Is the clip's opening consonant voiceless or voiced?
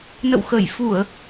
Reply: voiced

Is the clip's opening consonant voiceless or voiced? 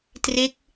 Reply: voiceless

